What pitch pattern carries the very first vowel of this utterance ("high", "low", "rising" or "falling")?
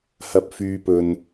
low